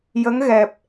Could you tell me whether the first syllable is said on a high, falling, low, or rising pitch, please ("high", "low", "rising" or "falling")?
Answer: rising